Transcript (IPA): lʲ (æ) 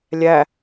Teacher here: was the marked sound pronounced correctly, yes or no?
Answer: yes